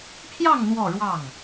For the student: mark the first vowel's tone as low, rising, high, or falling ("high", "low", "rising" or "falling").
falling